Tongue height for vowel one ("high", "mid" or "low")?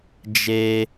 mid